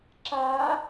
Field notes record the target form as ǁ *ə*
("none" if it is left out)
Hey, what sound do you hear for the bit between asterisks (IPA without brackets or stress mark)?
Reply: a